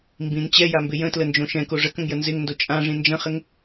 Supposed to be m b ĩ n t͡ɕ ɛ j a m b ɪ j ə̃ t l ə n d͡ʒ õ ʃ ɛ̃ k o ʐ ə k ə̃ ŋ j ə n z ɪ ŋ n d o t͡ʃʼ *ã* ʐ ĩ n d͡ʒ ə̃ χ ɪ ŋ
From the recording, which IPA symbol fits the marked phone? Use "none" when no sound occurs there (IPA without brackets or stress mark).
ã